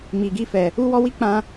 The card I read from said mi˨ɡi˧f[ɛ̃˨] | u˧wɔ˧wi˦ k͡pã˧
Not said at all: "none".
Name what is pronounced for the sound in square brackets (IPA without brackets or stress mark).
ɛ˨